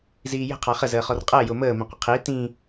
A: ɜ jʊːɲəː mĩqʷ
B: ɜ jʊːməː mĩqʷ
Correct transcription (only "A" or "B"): B